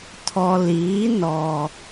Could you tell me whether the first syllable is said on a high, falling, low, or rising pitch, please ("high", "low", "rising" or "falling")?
low